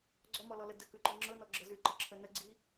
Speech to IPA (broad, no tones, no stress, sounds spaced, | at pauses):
ɡ͡ǀ ɔ m ɔ l ɔ l ə d ə k ʉ ǃ ɔ ŋ͡ǁ ɤ n ɔ ɡ͡ǁ ɤ z ʉ ǃ ə ǁʰ ə n ə ɡ͡ǀ i